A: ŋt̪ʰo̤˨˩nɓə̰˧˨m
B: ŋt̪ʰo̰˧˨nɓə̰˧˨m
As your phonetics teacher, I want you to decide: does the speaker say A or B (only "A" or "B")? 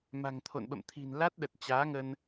B